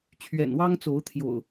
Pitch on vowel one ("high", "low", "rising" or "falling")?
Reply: low